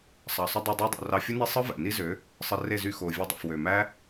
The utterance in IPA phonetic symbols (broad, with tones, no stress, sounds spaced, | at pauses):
sˤ ɑ˨ sˤ y˦ dˤ e˧ dˤ yː˧ dˤ o̰˨ r ɑ˧ fʲ u˦ n e˦ sˤ ɯ˦ v æ̰˨ n i˦ z ø˨˦ | sˤ ɯ˧ r e˦˨ z y˦˨ x oː˨ vʲ e˧ dˤ o̰˨ f w ø˨ m æ˦